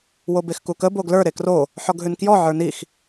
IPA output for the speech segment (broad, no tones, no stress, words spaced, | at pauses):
wobexkukə boɡlə˞ ɾekro | ħɔɡɦʉnkjɔ ʕə˞nix